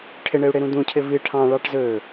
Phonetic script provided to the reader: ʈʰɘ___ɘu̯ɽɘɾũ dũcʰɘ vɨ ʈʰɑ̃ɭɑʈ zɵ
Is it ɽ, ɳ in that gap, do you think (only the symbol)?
ɳ